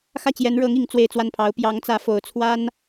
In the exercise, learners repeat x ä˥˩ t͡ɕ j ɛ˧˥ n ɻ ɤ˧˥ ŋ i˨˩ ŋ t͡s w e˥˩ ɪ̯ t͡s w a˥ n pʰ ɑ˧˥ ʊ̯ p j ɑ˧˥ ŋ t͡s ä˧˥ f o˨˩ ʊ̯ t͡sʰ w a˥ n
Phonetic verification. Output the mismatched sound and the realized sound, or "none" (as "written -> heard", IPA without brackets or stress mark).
none